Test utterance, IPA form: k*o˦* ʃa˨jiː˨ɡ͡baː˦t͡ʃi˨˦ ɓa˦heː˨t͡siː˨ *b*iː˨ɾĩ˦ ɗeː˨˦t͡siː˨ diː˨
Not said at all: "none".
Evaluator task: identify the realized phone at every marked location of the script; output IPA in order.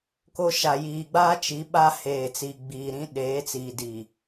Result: o˦, ɡ͡b

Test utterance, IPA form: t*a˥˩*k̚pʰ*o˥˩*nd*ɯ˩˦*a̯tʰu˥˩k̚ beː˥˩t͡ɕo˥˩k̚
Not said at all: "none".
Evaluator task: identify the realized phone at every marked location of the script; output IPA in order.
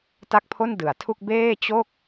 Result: a˥˩, o˥˩, ɯ˩˦

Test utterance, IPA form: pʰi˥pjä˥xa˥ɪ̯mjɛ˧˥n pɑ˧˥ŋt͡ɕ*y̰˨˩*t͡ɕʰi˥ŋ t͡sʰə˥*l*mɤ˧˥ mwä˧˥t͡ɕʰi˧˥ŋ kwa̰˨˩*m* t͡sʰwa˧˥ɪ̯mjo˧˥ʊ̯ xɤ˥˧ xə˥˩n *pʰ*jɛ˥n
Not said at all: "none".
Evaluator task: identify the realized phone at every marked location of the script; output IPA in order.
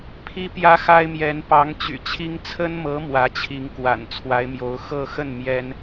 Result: y̰˨˩, n, n, m

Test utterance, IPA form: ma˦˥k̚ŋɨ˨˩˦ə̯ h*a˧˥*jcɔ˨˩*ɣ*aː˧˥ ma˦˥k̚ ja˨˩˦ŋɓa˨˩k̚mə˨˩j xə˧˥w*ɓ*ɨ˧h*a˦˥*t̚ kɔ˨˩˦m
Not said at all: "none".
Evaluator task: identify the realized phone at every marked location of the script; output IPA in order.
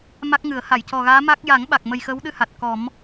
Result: a˨˩˨, ɣ, ɗ, a˨˩

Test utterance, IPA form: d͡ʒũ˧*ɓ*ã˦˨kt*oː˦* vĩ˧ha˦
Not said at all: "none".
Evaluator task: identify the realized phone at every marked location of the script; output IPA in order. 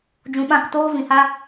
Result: ɓ, oː˦

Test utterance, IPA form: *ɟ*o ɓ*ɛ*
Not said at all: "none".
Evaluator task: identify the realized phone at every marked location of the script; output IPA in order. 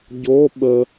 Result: ɟ, ə

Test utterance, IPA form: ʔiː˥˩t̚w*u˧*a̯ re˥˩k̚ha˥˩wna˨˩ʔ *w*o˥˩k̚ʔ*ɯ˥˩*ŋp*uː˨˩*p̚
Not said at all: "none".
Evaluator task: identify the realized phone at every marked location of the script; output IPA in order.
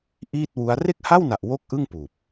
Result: u˦˥, w, ɯ˥˩, uː˨˩

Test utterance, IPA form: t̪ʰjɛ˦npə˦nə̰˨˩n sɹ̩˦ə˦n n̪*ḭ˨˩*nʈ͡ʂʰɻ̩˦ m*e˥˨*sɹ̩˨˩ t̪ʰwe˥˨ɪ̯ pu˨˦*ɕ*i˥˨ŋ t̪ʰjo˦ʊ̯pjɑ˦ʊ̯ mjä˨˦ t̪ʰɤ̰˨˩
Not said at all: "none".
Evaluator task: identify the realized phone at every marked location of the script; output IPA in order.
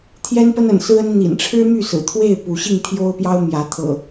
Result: ḭ˨˩, y˥˨, ɕ

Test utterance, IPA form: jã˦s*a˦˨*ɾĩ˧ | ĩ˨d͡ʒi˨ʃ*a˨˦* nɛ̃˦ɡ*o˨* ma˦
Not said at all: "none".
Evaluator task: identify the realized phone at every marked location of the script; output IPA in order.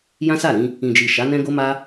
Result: a˦˨, a˨˦, o˦

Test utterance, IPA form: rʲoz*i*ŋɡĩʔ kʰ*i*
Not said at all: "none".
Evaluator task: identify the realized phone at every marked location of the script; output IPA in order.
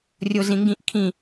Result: ĩ, ĩ

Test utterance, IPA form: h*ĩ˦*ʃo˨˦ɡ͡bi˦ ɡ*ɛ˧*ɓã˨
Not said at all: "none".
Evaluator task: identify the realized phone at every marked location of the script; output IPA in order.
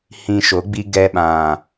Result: ĩ˧, ɛ˧

